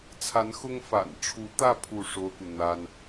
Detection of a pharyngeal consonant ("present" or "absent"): absent